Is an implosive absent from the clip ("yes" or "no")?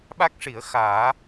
no